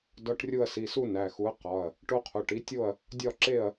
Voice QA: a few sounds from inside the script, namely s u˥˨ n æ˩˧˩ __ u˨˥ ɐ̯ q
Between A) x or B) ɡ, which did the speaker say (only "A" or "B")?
A